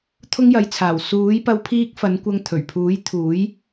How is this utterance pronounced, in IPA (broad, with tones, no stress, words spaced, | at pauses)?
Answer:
t̪ʰʊ˥ŋjɐ˨˥jt͡sʰaː˨˩w suː˨˥jpɐ˧w pʰiː˥k̚ fɐ˨˧nkʷɐ˧ŋ t̪ʰɵ˨˩ɥpʰuː˨˥j t̪ʰuː˨˥j